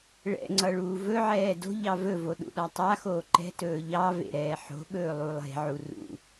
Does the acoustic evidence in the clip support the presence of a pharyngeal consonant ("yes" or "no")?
yes